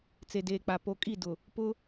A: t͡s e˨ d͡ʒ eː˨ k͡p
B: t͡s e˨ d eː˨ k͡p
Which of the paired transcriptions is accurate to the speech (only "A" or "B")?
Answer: B